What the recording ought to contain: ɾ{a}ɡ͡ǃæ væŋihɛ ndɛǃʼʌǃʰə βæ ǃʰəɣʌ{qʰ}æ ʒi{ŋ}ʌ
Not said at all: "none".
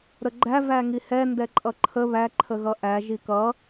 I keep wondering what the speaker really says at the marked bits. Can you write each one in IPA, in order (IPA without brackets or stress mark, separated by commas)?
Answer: ə, ʔ, k